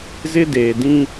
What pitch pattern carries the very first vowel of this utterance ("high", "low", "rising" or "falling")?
high